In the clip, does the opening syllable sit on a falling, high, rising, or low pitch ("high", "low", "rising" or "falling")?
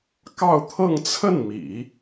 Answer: falling